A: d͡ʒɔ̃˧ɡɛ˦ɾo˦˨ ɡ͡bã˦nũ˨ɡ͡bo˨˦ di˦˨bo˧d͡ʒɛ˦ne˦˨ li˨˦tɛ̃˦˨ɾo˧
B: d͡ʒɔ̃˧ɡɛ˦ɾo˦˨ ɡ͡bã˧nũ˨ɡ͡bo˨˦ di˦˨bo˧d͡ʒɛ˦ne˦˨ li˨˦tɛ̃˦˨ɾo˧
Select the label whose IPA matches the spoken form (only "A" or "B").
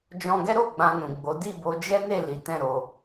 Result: B